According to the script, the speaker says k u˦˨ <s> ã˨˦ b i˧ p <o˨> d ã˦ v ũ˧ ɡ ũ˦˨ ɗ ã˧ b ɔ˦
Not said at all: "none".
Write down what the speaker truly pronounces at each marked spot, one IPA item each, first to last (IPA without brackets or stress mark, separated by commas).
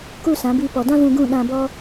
s, ɔ˨